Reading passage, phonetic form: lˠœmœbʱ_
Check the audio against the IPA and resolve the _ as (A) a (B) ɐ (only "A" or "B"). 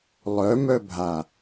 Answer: A